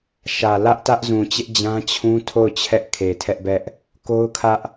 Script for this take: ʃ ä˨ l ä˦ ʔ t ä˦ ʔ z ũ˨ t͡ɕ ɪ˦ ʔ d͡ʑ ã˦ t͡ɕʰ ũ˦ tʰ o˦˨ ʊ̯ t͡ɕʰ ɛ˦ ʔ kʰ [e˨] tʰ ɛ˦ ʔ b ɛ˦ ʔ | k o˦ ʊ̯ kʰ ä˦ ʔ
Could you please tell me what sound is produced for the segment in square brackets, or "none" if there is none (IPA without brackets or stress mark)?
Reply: e˨